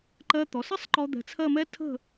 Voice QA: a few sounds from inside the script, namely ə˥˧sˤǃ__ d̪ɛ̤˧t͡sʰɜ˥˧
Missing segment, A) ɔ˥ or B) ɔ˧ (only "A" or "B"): B